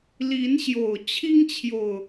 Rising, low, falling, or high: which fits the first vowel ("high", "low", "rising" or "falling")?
rising